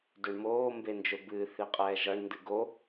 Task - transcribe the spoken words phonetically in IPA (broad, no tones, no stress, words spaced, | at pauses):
dɵɳmoː mbend͡ʒɵbɨː θiqʼɛːʒʌɳ ndɨɡo